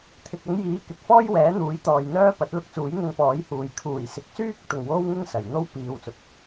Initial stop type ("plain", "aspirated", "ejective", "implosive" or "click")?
aspirated